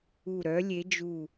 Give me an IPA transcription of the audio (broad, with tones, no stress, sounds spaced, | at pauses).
u˧˩ ɾ œ˨˥ lʲ e˨˥ d͡ʒ u˧˩